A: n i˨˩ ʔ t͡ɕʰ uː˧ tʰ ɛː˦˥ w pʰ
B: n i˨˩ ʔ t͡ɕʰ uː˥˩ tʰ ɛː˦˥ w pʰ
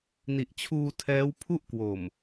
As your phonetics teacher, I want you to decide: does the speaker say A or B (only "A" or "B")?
A